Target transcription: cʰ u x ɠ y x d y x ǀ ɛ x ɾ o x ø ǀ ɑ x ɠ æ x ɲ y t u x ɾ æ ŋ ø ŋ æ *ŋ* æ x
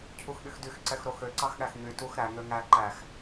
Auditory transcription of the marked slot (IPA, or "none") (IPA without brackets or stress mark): ǃ